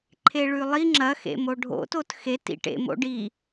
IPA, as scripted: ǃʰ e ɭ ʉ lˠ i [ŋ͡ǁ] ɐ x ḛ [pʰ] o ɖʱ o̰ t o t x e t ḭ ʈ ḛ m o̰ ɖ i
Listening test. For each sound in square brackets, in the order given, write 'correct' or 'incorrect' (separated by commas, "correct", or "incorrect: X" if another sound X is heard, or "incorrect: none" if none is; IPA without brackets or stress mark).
correct, incorrect: m